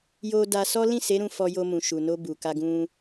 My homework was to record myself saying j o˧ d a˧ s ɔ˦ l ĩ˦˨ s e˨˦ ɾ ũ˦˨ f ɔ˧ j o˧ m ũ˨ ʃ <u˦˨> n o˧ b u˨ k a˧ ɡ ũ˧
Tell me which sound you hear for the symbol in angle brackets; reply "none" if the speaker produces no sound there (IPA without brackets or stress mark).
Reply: u˨